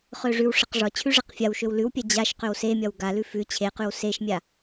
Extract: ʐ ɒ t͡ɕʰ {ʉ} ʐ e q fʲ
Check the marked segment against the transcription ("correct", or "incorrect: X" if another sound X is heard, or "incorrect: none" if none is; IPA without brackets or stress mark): correct